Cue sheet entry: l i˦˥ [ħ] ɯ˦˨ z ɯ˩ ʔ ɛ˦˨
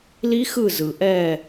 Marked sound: incorrect: x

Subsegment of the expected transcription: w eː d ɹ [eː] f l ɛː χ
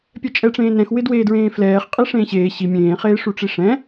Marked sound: incorrect: ẽː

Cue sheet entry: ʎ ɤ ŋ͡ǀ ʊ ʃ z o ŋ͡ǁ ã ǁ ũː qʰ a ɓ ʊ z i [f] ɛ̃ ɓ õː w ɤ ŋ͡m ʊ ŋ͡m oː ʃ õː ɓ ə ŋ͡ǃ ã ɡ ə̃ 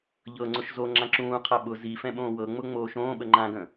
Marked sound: correct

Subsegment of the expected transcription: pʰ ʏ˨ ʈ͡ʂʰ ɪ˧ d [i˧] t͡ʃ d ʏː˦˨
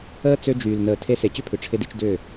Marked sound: correct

